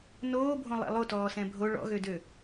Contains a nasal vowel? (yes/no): yes